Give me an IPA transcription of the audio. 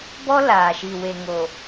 b ɔ˦ l aː˨ ʃ i˨ w e˨ ŋ o˨

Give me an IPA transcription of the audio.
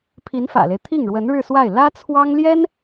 pʰ i˧˥ n f ä̰˨˩ l e˦ ɪ̯ t̪ʰ i˥˩ ŋ ɻ w ə˧˥ n ɻ ɻ̩˥˧ s w a˥˩ ɪ̯ l ä˥ t͡sʰ w ɑ˥ ŋ l j ɛ˥ n

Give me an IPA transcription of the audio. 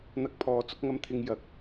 n̪ ɐ˧ k̚ pʰ ɔː˨˧ t͡s ʊ˧ k̚ ŋ ɐ˧ m t̪ʰ ɪ˧ ŋ j ɐ˨ k̚

